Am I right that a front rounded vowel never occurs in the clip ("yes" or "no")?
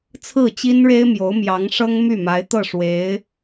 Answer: no